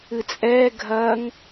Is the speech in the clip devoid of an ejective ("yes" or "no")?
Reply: no